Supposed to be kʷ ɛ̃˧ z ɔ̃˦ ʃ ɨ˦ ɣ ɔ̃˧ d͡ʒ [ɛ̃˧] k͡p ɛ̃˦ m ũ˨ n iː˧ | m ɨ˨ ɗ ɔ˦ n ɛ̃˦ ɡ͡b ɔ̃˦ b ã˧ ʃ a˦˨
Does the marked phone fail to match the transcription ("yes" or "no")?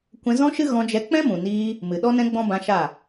yes